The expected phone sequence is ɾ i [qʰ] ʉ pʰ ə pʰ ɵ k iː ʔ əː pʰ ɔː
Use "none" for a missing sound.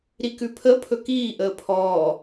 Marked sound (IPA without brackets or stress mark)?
k